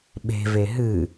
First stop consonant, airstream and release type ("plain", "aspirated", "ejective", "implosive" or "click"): implosive